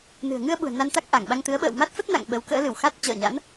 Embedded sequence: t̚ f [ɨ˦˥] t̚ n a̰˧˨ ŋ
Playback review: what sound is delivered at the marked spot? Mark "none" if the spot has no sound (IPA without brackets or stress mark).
ə˦˥